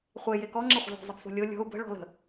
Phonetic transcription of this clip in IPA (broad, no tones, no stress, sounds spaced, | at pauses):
χʷ e j e k ɔ ŋ͡ǁ ɘ χʷ ə̤ l o̤ zˤ ə b f o̤ lʲ o lʲ ɔ̤ u̯ b ə̤ ɭ ɔ̤ l ə̤